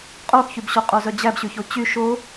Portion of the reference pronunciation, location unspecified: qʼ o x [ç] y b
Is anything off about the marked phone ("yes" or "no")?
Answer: no